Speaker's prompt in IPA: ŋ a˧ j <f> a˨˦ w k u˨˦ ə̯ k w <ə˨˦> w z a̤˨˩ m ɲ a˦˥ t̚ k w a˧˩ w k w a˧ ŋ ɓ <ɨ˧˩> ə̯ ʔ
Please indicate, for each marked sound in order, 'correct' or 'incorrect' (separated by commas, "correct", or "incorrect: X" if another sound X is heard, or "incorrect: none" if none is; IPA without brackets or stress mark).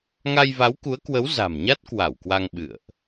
incorrect: v, correct, incorrect: ɨ̰˧˨